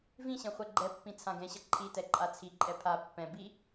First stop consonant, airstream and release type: click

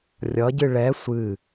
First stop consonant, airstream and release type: plain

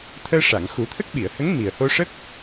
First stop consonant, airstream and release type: aspirated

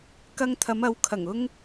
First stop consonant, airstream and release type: plain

